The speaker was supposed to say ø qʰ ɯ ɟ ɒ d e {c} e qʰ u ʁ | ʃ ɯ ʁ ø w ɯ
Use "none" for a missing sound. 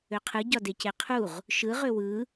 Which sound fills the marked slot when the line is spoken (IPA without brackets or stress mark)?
c